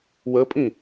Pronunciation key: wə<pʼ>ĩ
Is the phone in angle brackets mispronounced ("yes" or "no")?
no